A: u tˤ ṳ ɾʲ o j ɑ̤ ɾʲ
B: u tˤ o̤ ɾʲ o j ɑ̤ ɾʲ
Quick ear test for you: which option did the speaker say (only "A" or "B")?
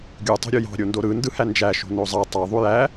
B